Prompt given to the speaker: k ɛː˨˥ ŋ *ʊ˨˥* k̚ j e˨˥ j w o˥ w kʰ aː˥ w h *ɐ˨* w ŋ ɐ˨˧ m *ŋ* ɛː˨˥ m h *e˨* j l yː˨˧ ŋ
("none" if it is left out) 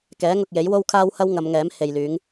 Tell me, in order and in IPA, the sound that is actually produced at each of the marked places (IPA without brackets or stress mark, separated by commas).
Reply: ʊ˨, ɐ˥, ŋ, e˨